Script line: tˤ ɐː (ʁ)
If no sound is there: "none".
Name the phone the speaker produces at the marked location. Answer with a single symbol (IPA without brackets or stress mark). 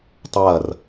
r